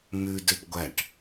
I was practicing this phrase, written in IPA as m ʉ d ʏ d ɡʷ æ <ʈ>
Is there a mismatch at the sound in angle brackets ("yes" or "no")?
no